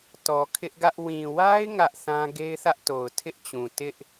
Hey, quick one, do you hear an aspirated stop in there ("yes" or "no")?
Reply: yes